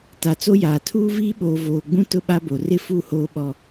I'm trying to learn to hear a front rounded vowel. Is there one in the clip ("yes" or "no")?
no